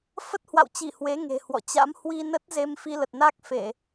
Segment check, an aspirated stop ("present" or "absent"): absent